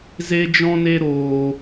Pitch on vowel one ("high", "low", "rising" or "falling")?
high